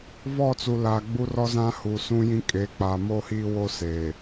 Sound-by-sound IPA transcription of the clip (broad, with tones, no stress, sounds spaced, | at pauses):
v ɔ˦˨ t͡s u˨ l a˨ ɡ͡b u˦ r ɔ˦ z ã˦ h u˨ s ũ˦ j ĩ˦ kʼ e˨˦ k͡p aː˨ m oː˦ h iː˦ w o˦ s eː˨